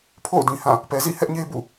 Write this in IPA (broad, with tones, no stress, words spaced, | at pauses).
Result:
pʰo̰˦˨ʊ̯ dĩ˨hã˦˨ | pɛ˨zḭ˦˨hɛ˦ʔɲe˦ bṵ˦˨